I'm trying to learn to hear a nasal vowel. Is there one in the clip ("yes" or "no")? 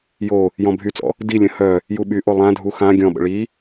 yes